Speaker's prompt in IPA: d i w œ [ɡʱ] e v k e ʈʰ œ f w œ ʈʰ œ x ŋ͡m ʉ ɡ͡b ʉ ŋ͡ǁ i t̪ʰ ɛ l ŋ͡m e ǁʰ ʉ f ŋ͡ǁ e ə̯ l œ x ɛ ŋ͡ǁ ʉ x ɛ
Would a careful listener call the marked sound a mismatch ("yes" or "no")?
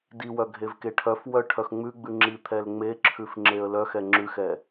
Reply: no